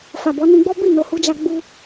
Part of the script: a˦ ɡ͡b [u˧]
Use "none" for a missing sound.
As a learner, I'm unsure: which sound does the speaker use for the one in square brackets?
u˧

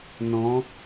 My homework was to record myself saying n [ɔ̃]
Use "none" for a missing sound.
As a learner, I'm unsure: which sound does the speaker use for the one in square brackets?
ɔ̃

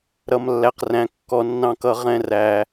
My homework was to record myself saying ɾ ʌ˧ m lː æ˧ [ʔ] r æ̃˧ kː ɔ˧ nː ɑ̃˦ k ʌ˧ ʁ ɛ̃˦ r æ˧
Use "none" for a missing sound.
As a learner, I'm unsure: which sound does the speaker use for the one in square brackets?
q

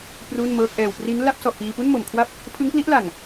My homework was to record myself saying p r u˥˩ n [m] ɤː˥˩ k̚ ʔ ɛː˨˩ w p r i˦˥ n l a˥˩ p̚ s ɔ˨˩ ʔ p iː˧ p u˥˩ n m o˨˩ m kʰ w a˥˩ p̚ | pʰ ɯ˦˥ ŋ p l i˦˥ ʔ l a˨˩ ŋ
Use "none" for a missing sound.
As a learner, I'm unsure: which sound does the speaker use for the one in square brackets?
m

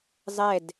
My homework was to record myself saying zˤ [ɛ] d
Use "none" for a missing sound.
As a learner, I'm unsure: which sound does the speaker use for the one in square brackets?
ɛ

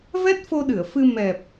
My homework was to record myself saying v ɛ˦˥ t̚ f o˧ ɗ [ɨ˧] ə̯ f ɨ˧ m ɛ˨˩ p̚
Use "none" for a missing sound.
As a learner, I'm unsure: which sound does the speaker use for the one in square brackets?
ɨ˧˩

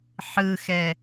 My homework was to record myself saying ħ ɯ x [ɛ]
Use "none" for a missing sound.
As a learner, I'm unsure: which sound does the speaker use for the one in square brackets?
ɛ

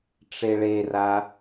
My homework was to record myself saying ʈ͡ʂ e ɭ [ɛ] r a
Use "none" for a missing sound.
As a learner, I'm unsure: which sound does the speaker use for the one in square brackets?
e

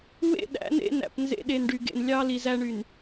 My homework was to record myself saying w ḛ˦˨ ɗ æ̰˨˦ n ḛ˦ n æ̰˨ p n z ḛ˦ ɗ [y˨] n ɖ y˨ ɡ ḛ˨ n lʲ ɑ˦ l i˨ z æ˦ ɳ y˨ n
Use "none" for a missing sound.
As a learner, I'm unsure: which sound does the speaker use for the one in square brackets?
e˨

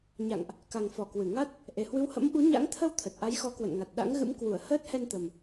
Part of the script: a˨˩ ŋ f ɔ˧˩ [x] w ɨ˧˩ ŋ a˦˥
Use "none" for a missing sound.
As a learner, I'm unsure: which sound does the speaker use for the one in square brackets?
k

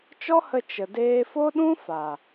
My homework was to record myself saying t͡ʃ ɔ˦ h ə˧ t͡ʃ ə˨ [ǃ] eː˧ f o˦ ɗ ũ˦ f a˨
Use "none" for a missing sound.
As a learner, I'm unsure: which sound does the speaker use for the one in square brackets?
d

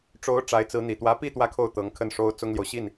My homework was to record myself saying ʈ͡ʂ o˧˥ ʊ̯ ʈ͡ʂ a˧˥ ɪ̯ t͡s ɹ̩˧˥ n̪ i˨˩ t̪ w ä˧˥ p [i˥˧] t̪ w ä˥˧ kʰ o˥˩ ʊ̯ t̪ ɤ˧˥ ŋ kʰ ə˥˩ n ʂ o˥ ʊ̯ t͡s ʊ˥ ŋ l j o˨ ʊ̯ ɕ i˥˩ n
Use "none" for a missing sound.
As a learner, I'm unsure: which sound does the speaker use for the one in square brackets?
i˥˧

